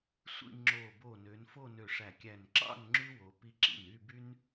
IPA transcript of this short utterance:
sʷ ḭ˥˧ ŋ͡ǁ o˧˩ b o˧˩ n ø˩˧ n f o˥˧ n ø˧˩ ʂ æ˧˩ kʲ æ˧˩ n ǁ ɑ̰˥˧ n ŋ͡ǁ y˥ w o˩˧ p i˧ ǁ ḭ˧˩ n y˥˧ b y˥ n

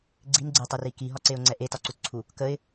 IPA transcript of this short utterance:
ɡ͡ǀ i n ɡ͡ǀ e tˤ e r i k i ɦ ɒ ǀ e ʊ̯ ŋ͡ǀ ɛ ʔ e t ɒ ǀ u t ǀʰ u | k ə ɪ̯

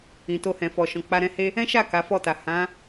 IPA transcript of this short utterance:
ĩ˨ t o˧ h ɛ̃˨ f ɔ˨ ʃ ɔ̃˨ k͡p a˧ ɾ ɛ̃˧ h e˦ | ɛ̃˦ ʃ a˦˨ k a˨˦ f ɔ˦˨ t a˨ h ã˨˦

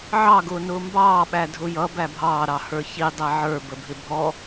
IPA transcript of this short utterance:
ʕ ɑ ɡ ʊː n ʊː m b ɑː ɓ æ dʱ ʊ j ʌ b æ bʱ ɑː ɾ ɑ h ə˞ ç i dˤ æ ʕ ə˞ b ə bʱ ɪ bʱ ɔ

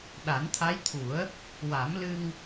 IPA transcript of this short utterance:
ɗ a˨˩˦ n t̪ʰ a˧˥ j t̪ʰ u˨˩˦ ə̯ | w a˨˩˦ m l ɨ˧ ŋ

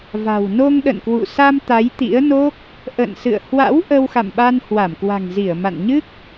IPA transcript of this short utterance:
v a̤˨˩ w n o˧ ŋ ɗ ə̰˧˨ n k w ṵ˧˨ s a˧ m t̪ a˨˦ j t̪ ḭ˧˥ ə̯ n o˦˥ k̚ | ʔ ə̰˧˨ n s ɨ̰˧˨ ə̯ h w a̰˧˥ w ʔ ə˧ w x a̰˧˨ m ɓ a˧ n h w a˧˩ m k w a̤˨˩ ŋ z i˧˩ ə̯ m a̰˧˨ n ɲ ɨ˦˥ k̚

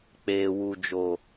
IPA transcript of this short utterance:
k͡p eː˨ w u˨ d͡ʒ oː˨

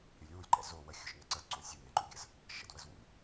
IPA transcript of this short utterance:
ɾʲ ʊ lʲ w u lʲ ǃ ɛ̰ z o w ə xʲ ʊ ʃ n ə ǀ ə d ǀ õ sʲ u ŋ ɛ̃ ǃ ṵ ɡʲ ə̰ z | ʃ ə̰ d w ə z w ṵ lʲ

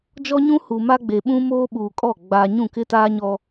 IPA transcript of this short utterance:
d͡ʒ ɔ˦ ɲ ũ˦ h u˨ m a˦ ɡ͡b e˨ ɓ ũ˦ m oː˦ ɓ uː˨ kʼ ɔ˦˨ ɡ͡b aː˨ ɲ ũ˦˨ k ɪ˦ t aː˦ ɲ ɔ˦

